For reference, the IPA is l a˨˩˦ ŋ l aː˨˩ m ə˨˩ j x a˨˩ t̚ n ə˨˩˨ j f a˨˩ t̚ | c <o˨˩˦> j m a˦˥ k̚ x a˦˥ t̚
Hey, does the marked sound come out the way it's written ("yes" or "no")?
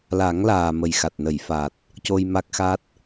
no